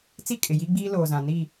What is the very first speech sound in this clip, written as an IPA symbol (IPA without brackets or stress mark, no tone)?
t͡s